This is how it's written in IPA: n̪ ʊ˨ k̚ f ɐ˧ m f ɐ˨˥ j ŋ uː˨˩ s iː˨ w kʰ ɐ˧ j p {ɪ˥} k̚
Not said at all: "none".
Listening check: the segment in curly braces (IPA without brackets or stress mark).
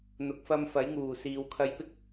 ɪ˥